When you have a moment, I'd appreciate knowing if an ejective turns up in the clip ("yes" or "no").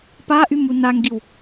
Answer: no